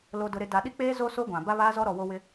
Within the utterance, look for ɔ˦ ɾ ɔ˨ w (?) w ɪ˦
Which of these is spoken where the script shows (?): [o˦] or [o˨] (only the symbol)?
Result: o˦